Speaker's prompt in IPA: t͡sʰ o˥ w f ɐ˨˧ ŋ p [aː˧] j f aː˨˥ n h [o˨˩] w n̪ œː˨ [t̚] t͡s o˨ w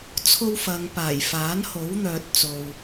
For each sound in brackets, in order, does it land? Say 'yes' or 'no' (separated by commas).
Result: no, no, yes